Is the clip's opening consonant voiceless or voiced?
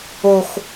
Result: voiceless